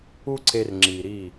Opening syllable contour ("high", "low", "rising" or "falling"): high